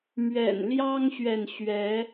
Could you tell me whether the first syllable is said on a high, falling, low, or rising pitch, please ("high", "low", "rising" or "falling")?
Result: low